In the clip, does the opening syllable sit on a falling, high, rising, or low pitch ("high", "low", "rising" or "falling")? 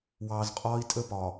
low